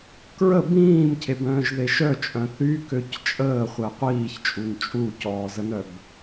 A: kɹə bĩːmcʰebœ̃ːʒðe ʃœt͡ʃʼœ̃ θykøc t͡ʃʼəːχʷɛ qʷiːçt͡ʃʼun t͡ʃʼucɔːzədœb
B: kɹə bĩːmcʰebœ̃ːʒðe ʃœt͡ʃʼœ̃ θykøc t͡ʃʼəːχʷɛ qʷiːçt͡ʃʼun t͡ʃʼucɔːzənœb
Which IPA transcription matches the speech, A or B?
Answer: B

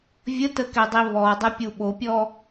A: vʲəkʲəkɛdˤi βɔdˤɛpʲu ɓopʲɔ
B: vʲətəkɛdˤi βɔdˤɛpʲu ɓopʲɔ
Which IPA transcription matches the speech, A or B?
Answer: B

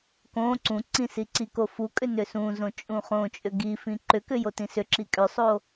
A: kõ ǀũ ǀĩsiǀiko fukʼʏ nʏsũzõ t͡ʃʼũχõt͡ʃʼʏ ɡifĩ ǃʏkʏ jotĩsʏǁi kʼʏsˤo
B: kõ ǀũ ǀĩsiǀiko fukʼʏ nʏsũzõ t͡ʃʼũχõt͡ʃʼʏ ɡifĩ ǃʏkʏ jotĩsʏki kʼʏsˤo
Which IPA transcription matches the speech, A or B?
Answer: A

